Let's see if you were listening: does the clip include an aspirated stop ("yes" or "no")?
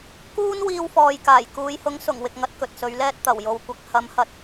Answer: no